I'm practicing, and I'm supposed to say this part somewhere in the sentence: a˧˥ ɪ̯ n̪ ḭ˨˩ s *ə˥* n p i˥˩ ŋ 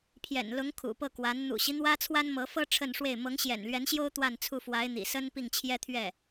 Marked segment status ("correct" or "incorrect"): correct